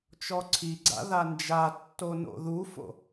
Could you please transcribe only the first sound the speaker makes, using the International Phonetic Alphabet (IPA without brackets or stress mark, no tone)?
t͡ʃ